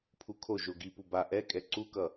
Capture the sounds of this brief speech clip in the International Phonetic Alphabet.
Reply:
pʰ u kʰ o ʒ o ɡ i p u b a ʔ ɛ kʼ ɛ ǀ u k ʌ

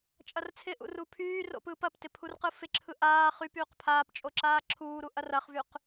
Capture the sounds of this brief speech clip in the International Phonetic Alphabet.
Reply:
t͡ʃʼ ɐ r t͡sʰ ɪ ʔ ṵ r u pʰ yː r o̰ p ɯː p ɐ p t ɪ pʰ u r q ɯ f ɪ ǁʰ ɯ ʔ aː χ y p yː q pʰ aː p t͡ʃʼ o ǁ aː ǁʰ uː ɾ u ʔ ɐ r ɐ χ v y q

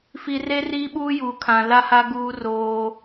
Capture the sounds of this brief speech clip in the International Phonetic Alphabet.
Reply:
f i˨ r e˦ r iː˦ ɓ uː˦ j uː˨ kʰ ã˨ l a˦ h a˦ ɡ uː˦ r oː˦

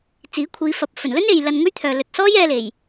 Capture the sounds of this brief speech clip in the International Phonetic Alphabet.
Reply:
t͡s iː˨˥ kʷʰ iː˨˧ f ɐ˨˥ p̚ f ɵ˨˩ n l ɵ˥ n e˨ j l ɐ˧ n ŋ ɵ˥ ɥ t̪ʰ œː˨ l ɵ˨ t̚ s ɔː˥ j ɛː˧ l e˨˩ j

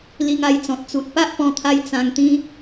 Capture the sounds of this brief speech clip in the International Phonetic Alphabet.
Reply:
l i˧ ŋ a˧ j t͡s ɔ̃˨ t̚ t͡s u˨ t̚ p a˦ ʔ p ɔ̃˧ t̪ʰ a˧ j t͡s ã˧ ŋ t̪ ĩ˦

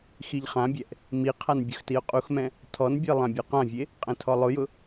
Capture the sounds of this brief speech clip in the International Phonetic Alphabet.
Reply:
x i ʎ χ ã bʲ ɛ ʔ | m i qʰ a n bʲ ʊ x t i ʊ̯ qʼ u x m ɛ̃ | tʰ ɔ n bʲ e lˠ ã bʲ ɔ q ã vʲ e | qʼ ɛ̃ tʰ ɔ lˠ ʊ j ʊ

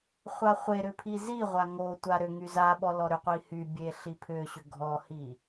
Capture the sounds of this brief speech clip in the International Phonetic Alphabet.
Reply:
χʷ a χʷ e ɾ ʏ pʰ i z i ʁʷ a ŋ o tʷ a ɾ ʏ ŋ y z a ɓ ɔ l ɔ ɾ ʏ qʷ i h y bʲ e ɬ i pʰ ʏ ɕ ʏ ɡʱ ɔ h i

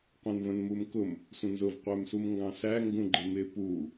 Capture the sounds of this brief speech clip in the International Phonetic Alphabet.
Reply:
qʷ ɛ̃ n v ə̃ n m u m k ʊ m | sʷ ə̃ n z ʊ v qʷ æ m s u m ŋ ɡ ɑ̃ s æ ŋ ɡ ũ ɡ͡ǃ ɪ m ɪ p u

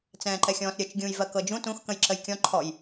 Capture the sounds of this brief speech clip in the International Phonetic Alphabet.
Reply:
t͡s ɛ̃ː ǃ ɛ xʲ ɔ̃ː s ɾʲ ə t͡ʃ ɡʲ ũː j v ɜ k ɤ d͡ʒ ũ t ũ x k ə̃ j ǁ ə j kʲ ɔ̃ ǃʰ ɔ j

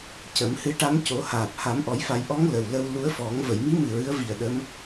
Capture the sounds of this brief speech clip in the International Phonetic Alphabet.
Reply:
c ə˨˩˦ m h ɨ˧˥ ʈ a˧˥ m c o˨˩˦ h aː˨˩ p̚ h a˨˩˦ m ʔ ɔ˨˩˦ j f a˨˩˦ j ʔ ɔ˧˥ ŋ l ə˨˩ w l ə˧ w l u˧˥ ə̯ f ɔ˨˩˦ ŋ v ə˨˩˨ j m i˧˥ m ɨ˨˩ ɹ ɨ˧˥ ə̯ v i˨˩ ə̯ ɗ ə˧˥ m

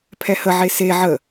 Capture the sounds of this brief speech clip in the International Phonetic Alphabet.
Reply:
pʰ ɛ h ə ʕ e s e ʕ ə

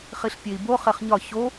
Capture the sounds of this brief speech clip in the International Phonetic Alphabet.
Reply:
χ i ɬ pʲ e i̯ b o χ e χ ɲ ɒ ç o

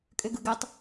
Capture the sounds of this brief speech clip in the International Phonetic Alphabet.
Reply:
kʼ ø ɡ ɯ ɡ ø tˤ

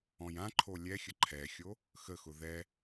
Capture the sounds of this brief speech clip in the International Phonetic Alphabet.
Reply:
ɔ̃ j ã ǃʰ o lʲ ɛ xʲ ə ǃʰ ɛ xʲ o | x ə x ʊ ð ɛ

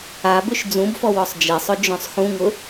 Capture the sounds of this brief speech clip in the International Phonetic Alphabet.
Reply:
a b ʏ ʃ d͡z ũ b f ɔ w ɔ sˤ d͡ʒ e sˤ ʊ d͡ʒ œ̃ sˤ x ũ ŋ ʊ

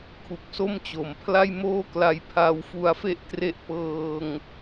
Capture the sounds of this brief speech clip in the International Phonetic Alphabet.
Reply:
kʰ u˨˩ k̚ s o˥˩ m t͡ɕ o˩˦ m pʰ l a˥˩ j m oː˥˩ k l a˧ j pʰ a˧ w f u˧ a̯ f e˥˩ ʔ t r e˦˥ ʔ p ɤː˧ ŋ

